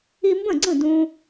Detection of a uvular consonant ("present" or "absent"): absent